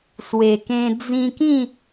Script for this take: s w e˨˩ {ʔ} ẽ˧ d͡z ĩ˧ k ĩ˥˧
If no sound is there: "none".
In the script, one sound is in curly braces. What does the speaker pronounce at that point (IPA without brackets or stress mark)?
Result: k